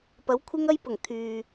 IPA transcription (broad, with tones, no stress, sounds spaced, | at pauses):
p ɐ˨˥ w kʷʰ ɪ˥ ŋ ɐ˥ j p ʊ˨˩ ŋ t̪ʰ yː˨